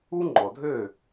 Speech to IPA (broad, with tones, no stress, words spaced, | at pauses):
u˥ŋ͡ǃɔ˩dʱø˥˩